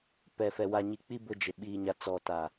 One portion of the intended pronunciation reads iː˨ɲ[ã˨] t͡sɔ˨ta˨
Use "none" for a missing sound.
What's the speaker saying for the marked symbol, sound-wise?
a˨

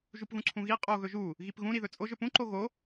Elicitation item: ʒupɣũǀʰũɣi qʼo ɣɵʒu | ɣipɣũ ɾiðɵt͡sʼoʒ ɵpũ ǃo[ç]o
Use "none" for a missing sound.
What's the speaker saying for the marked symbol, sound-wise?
ɣ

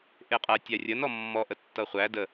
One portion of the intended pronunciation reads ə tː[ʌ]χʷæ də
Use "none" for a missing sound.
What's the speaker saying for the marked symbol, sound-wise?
ʌ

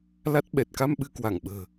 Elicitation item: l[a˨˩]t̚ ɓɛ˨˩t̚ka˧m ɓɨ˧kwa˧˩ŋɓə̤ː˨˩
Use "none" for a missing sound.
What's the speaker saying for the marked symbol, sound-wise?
a˦˥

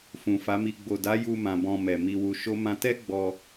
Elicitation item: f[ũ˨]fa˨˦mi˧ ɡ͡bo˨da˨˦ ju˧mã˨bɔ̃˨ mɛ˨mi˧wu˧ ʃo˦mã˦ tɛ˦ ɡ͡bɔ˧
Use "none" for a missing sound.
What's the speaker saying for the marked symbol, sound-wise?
ũ˨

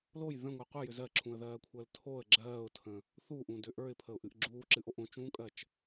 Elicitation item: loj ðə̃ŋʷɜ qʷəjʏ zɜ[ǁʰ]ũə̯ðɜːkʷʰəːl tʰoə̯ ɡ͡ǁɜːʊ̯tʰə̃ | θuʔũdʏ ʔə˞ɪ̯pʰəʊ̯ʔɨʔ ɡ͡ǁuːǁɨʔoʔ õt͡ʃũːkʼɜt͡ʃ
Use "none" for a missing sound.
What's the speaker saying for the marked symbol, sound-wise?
ǁʰ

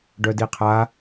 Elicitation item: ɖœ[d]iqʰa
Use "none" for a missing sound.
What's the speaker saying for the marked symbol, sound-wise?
d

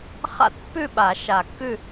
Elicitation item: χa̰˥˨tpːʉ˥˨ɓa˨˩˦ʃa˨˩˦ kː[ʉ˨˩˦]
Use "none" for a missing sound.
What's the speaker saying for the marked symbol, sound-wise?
ʉ˥˨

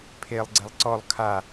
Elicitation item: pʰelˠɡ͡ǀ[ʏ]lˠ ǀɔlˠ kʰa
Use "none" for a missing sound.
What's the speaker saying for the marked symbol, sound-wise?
ɛ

